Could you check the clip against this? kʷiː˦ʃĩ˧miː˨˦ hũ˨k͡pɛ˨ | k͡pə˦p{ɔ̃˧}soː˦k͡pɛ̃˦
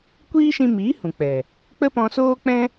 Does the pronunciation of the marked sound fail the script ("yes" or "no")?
no